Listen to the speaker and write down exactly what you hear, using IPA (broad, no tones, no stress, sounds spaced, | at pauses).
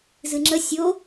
z ɨ ŋ͡ǁ ə sʲ o